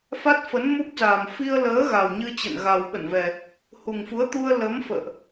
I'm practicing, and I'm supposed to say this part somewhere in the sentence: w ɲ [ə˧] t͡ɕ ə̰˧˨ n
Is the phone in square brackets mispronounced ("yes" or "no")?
yes